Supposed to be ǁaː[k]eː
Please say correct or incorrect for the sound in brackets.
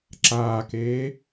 correct